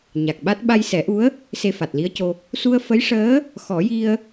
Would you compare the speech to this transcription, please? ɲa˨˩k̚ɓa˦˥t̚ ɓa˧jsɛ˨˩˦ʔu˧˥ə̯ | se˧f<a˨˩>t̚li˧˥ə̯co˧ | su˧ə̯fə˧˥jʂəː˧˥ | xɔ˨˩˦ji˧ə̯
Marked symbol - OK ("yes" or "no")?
yes